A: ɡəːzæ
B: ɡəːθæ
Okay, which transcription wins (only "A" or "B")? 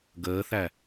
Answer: B